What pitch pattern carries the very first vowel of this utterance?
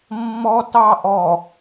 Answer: high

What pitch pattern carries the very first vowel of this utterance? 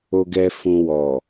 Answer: low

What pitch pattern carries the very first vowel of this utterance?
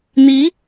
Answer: rising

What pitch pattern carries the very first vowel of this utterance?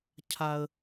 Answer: high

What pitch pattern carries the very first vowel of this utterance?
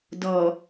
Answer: low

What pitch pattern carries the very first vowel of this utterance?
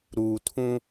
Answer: low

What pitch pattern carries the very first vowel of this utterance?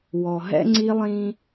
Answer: low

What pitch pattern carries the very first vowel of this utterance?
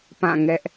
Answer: falling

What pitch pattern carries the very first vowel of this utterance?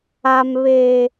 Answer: low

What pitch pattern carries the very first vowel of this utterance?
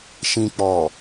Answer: low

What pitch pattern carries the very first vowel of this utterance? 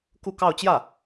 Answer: falling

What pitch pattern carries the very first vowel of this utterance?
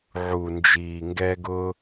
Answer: low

